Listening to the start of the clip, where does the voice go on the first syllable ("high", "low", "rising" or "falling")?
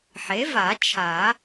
rising